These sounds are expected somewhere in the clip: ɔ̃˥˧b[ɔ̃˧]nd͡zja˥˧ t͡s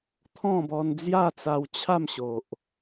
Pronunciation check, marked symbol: incorrect: ɔ˧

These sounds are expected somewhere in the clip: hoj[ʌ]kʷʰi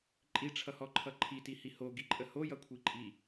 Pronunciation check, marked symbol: correct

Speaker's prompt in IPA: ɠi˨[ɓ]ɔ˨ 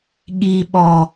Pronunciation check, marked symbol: correct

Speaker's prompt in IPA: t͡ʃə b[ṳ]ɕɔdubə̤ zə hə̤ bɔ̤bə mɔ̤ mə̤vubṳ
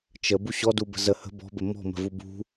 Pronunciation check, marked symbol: incorrect: u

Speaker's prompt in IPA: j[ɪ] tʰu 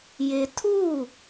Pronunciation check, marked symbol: correct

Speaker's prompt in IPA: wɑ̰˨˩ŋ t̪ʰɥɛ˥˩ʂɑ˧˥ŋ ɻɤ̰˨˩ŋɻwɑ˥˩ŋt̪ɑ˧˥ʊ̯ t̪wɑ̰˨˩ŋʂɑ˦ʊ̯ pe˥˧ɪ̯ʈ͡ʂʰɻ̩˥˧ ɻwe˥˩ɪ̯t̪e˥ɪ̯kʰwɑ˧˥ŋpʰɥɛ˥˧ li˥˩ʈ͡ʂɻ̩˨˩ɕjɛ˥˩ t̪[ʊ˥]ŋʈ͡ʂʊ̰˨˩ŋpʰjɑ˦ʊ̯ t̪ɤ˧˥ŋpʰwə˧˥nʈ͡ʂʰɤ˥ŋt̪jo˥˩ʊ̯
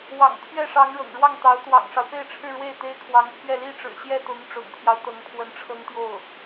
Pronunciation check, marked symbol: incorrect: ʊ˧˥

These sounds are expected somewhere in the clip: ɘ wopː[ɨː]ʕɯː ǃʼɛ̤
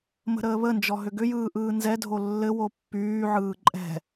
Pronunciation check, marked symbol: incorrect: yː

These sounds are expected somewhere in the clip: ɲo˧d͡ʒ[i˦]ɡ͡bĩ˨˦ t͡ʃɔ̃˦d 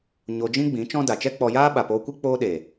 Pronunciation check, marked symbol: incorrect: ĩ˦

